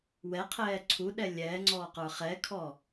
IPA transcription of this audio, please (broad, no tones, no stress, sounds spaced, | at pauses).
w ɛ qʰ ɛː ǀʰ u ɗ ɛ lʲ ɛː ŋ͡ǀ ɔː q ə˞ χ ɛ kʰ ɔ